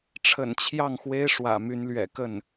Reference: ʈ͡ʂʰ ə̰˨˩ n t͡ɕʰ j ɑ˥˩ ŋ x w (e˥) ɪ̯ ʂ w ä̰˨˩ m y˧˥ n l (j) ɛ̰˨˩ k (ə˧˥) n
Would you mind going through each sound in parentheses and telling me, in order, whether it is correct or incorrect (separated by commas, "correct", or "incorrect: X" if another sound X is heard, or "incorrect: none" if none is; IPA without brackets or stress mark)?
correct, incorrect: ɥ, incorrect: ə˥˩